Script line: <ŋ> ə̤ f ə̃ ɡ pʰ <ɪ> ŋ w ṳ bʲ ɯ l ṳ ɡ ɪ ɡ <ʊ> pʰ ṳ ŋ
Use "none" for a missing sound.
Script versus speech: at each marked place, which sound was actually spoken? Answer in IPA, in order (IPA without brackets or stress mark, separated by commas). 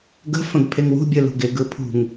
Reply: ɡ, ɪ, ɯ